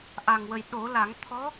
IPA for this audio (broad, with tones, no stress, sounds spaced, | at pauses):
ʔ a˨˩ ŋ w ə˨˩ j ɗ o˨˩˦ l a˨˩˦ ŋ t̪ʰ ɔ˧˥